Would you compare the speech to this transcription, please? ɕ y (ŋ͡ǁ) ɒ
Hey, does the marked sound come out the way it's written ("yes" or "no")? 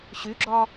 no